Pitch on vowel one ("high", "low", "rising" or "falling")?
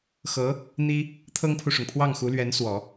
rising